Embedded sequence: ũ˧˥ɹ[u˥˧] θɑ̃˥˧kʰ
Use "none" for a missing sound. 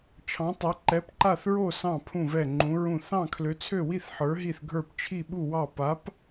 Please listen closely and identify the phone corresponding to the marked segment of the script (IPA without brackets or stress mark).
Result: ũ˥˧